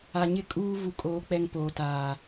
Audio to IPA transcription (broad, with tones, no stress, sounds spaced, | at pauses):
a˨ ɲ ɪ˦˨ kʼ uː˦ v u˨ kʼ oː˨ k͡p ɛ˨ ŋ p oː˨ t aː˨